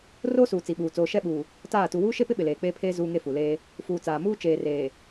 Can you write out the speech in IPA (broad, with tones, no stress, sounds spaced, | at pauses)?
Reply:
r oː˦ s uː˨ t͡s i˨ ɓ uː˨ t͡s oː˨ ʃ ɛ˦˨ ɓ uː˨ | t aː˦˨ t u˨ w uː˦ ʃ e˦ p ɪ˦ ɓ ɪ˨ l eː˨ k͡p eː˦ pʰ eː˦ z uː˦ ŋ e˦ f u˨ l eː˦ | f uː˨ t͡s aː˨ m uː˦ t͡ʃ eː˨ r eː˨